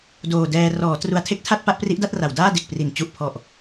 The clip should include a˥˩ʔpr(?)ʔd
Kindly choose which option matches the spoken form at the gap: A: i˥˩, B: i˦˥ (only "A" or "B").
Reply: B